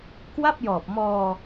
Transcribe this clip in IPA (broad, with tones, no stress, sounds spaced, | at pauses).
k w a˥˩ p̚ j ɔː˨˩ p̚ m ɔː˧